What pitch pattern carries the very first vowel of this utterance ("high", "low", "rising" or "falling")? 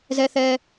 high